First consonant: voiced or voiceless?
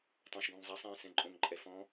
voiceless